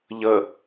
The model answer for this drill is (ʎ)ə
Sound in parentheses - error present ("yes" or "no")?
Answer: no